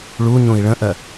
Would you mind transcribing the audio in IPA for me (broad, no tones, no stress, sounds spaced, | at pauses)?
ɭ u ɲ ũ i̯ ɭ ə̃ ʔ ɜ